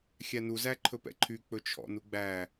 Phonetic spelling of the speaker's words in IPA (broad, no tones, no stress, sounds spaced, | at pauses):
xʲ æ n u z æ ǃʰ ɵ p ɛ̰ ǃʰ y k͡p ɵ t͡ʃʰ ɔ̰ n u ɡ͡b æ